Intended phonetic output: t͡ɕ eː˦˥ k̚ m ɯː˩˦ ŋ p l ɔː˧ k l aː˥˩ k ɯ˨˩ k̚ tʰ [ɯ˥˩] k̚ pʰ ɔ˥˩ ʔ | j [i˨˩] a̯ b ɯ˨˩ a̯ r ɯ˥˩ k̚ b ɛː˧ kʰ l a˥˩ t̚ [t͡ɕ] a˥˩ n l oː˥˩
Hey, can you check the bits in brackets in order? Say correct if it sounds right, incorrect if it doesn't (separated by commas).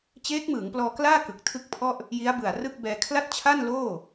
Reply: correct, incorrect, incorrect